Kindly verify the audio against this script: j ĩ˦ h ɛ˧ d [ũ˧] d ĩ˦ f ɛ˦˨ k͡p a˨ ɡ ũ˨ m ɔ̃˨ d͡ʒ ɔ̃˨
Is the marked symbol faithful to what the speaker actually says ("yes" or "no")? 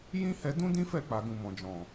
no